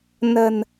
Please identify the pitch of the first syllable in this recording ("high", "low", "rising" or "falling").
low